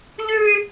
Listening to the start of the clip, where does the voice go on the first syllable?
high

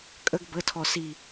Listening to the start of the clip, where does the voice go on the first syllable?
high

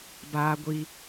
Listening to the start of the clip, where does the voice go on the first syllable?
high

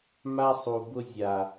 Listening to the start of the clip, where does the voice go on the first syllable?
high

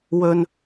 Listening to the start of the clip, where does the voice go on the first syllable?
low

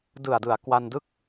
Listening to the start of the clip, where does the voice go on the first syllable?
low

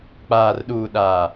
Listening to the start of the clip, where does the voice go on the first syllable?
low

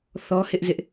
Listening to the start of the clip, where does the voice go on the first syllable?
high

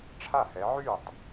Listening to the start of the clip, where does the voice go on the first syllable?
falling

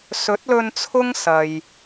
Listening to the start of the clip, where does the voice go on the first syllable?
rising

